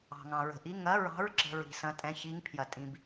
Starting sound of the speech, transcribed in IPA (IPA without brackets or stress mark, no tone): ɑ̤